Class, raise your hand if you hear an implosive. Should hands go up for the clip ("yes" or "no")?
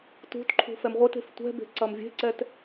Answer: no